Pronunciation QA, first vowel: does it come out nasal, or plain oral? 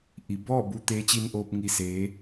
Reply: oral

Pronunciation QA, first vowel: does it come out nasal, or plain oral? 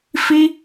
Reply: oral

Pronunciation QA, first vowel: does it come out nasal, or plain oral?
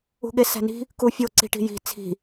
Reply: oral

